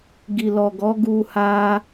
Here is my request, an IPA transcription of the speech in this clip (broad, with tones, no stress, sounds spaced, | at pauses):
ɡ i˨ l ɔ˨ ɡ ɔ˨˦ ɡ u˧ h a˧